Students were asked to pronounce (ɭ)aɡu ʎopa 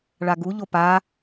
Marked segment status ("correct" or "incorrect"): correct